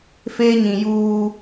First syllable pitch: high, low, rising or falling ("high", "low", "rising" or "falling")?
high